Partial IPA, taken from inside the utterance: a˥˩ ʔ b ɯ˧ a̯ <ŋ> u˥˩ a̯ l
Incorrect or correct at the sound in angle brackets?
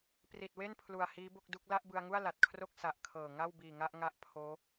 correct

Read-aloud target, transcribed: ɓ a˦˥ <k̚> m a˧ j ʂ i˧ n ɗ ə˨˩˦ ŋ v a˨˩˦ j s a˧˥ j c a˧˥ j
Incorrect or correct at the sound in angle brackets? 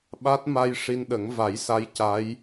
incorrect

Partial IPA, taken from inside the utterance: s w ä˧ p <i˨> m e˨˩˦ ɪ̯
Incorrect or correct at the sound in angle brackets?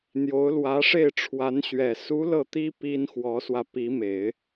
incorrect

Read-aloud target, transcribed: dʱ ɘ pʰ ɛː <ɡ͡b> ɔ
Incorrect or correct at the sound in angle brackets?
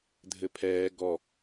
incorrect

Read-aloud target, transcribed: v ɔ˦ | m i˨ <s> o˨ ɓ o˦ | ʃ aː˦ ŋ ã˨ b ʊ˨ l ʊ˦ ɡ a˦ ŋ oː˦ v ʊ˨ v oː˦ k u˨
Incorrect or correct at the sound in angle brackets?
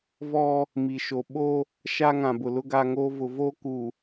incorrect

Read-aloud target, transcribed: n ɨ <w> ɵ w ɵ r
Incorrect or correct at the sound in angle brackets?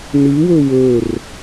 correct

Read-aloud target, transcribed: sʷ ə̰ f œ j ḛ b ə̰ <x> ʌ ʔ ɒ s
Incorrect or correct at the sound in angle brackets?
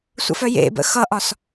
correct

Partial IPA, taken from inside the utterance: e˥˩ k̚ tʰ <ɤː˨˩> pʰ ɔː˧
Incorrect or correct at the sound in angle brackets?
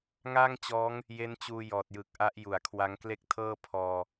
incorrect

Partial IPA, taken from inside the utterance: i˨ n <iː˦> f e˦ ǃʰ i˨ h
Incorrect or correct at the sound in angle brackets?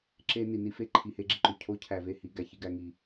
incorrect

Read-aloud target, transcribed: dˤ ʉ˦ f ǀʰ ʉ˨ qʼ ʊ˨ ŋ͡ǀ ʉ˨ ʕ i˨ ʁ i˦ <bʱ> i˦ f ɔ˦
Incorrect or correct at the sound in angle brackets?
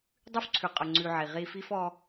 incorrect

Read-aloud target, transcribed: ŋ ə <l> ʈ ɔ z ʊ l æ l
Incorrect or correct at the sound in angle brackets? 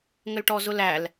correct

